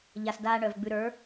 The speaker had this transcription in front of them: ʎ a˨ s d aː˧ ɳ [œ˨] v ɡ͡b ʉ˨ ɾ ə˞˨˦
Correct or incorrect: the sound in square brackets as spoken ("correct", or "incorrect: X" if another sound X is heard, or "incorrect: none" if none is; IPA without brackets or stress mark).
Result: correct